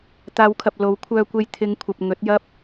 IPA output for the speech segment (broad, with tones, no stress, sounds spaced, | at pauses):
t̪ aː˨˧ w kʰ ɐ˨ p̚ l o˨˥ w kʷʰ œː˧ kʷ e˧ j t̪ʰ ɪ˨˧ ŋ kʷʰ ɐ˨ p̚ ŋ ɵ˨˥ t̚ j ɐ˥ p̚